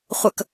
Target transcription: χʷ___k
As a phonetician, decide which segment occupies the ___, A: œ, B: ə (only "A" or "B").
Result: B